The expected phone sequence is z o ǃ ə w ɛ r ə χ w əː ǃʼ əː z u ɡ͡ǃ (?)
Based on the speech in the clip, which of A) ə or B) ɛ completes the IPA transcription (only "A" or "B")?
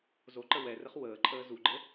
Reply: A